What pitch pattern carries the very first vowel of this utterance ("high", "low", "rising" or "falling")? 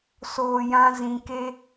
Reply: low